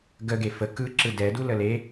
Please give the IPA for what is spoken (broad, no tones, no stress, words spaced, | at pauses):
ɡəɡe fə kɯǁɯ dɛdu ləle